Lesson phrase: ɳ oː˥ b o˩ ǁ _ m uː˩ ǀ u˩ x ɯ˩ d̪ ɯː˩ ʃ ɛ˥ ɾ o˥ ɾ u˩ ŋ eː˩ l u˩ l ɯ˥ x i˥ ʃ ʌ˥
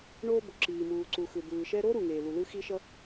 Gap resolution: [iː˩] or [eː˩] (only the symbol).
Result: iː˩